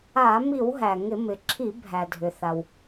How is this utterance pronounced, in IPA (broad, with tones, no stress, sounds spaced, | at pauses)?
a˧˩˧ m i˧˩˧ w ɦ æ˩ ŋ ɪ˧˩˧ m ɪ˩ ǁʰ i˧˩˧ bʱ æ˩ dʱ ʏ˩ θ a˩ w